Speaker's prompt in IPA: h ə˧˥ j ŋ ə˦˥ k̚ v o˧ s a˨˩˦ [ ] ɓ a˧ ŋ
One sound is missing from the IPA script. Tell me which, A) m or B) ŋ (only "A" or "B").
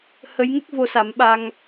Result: A